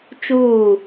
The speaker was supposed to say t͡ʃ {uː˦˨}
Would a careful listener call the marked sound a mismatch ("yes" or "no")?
no